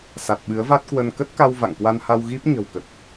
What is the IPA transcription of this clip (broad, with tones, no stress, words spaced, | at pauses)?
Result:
sa˨˩t̚ɓɨ˨˦ə̯va˦˥t̚kwə˧n kə˦˥t̚ka˧w va̰˧˨ŋkwa˧nha˧w ɣi˦˥p̚ ɲə̤˨˩wkə˨˩t̚